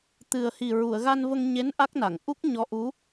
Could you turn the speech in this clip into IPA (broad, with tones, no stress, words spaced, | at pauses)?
t̪ɨ˨˩ə̯hi˨˩ɹu˨˩˨ə̯ ɣa˧nvə˧ŋɲe˧˥n ʔa˦˥k̚na˨˩˨ŋ ʔu˦˥k̚ɲɔ˧˥ʔu˧˥